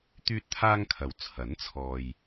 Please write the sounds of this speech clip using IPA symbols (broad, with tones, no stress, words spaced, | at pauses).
t̪yː˥t̚t̪ʰaː˥ŋkʰɐ˨w t͡sʰɐ˨˥nt͡sʰɔː˨j